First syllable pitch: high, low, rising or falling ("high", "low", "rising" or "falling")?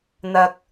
low